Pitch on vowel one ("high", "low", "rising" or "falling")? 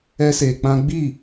high